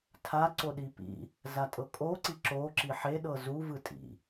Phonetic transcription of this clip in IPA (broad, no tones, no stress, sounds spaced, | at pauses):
tʰ a ǀ o ɗ i p ḭ | z a tʼ ɤ kʼ o ǀ i ǁ o ǁ i ħ e ɗ ɤ z u v ɯ tʼ ḭ